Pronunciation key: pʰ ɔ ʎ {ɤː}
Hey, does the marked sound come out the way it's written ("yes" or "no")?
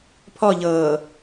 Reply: yes